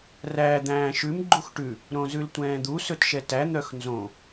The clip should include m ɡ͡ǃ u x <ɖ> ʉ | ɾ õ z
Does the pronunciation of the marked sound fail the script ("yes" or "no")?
yes